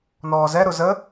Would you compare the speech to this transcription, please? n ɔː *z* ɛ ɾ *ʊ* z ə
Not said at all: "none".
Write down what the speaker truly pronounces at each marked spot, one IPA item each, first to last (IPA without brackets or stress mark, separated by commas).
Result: z, ʊ